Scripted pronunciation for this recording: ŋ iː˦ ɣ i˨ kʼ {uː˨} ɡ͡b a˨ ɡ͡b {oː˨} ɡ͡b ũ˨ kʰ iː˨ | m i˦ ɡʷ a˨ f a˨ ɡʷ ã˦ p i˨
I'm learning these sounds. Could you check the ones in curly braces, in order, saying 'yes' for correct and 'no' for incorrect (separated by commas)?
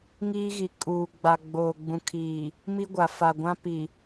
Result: yes, yes